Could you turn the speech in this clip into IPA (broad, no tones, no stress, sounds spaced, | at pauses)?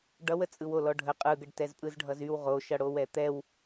ɖ ʌ w ə t͡sʼ ɯ w o l ɔ ɖʱ ə qʼ ɯ ɡ ə ɖ t ɛ z pʼ ɯ z ɖʱ ʌ z y w ʁ o ʃ ʌ ɽ o w ɛ t̪ ɛ w